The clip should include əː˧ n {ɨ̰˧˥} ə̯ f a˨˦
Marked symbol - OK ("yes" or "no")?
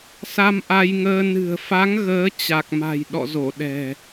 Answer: no